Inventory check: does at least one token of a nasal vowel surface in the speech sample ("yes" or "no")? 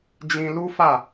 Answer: yes